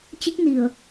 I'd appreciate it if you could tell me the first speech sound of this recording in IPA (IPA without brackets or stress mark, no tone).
t͡ɕ